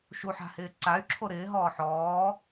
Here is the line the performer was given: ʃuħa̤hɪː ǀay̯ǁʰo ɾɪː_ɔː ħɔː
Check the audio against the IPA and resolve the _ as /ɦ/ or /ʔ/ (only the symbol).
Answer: ɦ